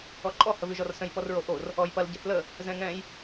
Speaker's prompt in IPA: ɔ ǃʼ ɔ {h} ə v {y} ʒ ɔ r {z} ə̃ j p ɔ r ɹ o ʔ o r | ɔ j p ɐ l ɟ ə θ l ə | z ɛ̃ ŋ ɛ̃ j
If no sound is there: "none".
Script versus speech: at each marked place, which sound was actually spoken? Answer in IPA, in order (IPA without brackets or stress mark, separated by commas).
h, y, s